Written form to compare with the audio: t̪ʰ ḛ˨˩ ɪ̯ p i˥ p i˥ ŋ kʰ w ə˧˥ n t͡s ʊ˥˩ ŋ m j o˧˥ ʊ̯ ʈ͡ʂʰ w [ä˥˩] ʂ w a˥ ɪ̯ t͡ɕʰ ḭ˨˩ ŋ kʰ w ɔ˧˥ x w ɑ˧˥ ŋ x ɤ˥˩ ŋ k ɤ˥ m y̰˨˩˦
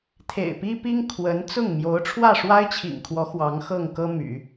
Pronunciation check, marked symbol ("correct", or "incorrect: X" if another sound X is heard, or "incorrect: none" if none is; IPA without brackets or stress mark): correct